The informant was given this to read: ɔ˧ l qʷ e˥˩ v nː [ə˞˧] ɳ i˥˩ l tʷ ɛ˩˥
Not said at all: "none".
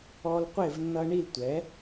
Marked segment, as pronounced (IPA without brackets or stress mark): ʌ˧